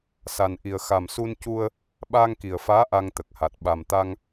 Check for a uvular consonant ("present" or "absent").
absent